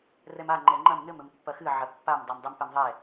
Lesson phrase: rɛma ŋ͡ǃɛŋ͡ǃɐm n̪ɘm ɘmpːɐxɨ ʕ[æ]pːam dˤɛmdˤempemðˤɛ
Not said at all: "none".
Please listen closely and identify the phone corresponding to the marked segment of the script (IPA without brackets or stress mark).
ɐ